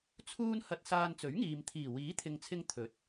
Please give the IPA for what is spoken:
t͡sʰ uː˥ n h ɐ˧ t̚ s aː˧ n t͡s ɵ˨˥ ɥ ŋ iː˨ m t̪ʰ iː˨˩ w iː˨˥ t̪ʰ ɪ˨ ŋ t͡sʰ ɪ˧ ŋ t̪ʰ ɵ˨˥ t̚

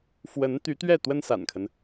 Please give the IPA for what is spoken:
f w ə˧˥ n t̪ y˧˥ t̪ ɥ ɛ˥˩ t̪ w ə˥ n s a̰˨˩ n kʰ ə˦ n

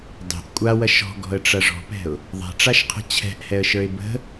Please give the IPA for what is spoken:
dˤ ɛ̤ ʔ kʷʼ a w ɐ ʃ ɔ̤ ɡ ɔ̤ ə̯ ʈ͡ʂ ɐ ʐ ɔ̤ p ɛ̤ ʊ̯ | ðˤ ɛ̤ ʈ͡ʂ a ʃ qʰ ə̤ t͡ɕʰ ɛ̤ ʔ h ɛ ə̯ ʃ ə˞ ɪ̯ b ə̤

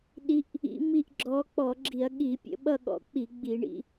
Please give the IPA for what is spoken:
ɗ i˨˦ ʔ | ḭ˨˦ m i˦˨ ʔ ɡ͡ǁ ɔ˨˦ k͡p ɔ˧˩˧ ɡ͡ǁ i˧˩˧ ɐ̯ ɠ i˧˩˧ pʲ ə̰˧˩˧ ɓ ʌ˦˨ ɠ ɔ̰˨˦ k͡p i˧˩˧ ɡ͡b i˧˩˧ ɳ ḭ˨˦

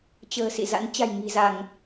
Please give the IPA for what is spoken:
t͡ɕ ə̤ː˨˩ s ḭ˧˨ z a̰˧˥ n t͡ɕ a̤˨˩ j ŋ i̤˨˩ z a˧˩˨ ŋ

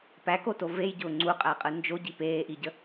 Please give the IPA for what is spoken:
p æ k o t o v e j ɟ ʊː ŋ͡ǀ u qʼ æ qʼ ɯ n d͡ʒ o ɟ i p eː ʔ i ɟ ə

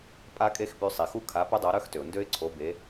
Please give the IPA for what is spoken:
pʼ a˦˥ kʼ e˦˥ x p y˨˦ sˤ i˩ x u˦˥ kʰ a˨˦ p ə˦˥ dˤ o˨˦ ɾ œ˦˥ x t ø˩ ʊ̯ n d ø˦˥ ɪ̯ ǀʰ o˨˦ b e˨˦

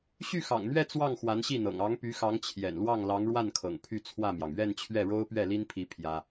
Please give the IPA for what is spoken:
ɕ y˥˩ x ɑ̰˨˩ ŋ n̪ ɥ ɛ˥˧ t͡s w ɑ˥˩ ŋ x w a˧˥ n ɕ i˥˩ n̪ ɤ̰˨˩ ŋ ɑ˧˥ ŋ p y˧˥ x ɑ˧˥ ŋ t͡ɕʰ j ɛ̰˨˩ n l w ɑ˥˩ ŋ l ɑ˧˥ ŋ ɻ w a˥˩ n kʰ ɤ̰˨˩ ŋ pʰ y˥˧ t͡sʰ w ä˥˩ m j ɑ˩ ŋ ɥ ɛ˥˧ n t͡ɕʰ ɥ ɛ˥˩ ɻ o˥ ʊ̯ p ɥ ɛ˥˩ l i˥ n pʰ i˧˥ pʰ j ä˥

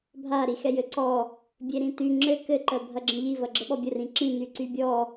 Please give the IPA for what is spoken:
bʱ a ɾ i x ɛ j ɘ ǀ ɔ | bʲ e ɾ ĩ t y ŋ͡ǁ ɘ k ɘ ǃ ɜ bʱ ɐ ɡ͡ǁ ə̃ ʎ i v ɐ ɡ͡ǁ ə ɓ ɔ bʲ ə r ĩ ǁ ĩ n y ǀ y bʲ ɔ

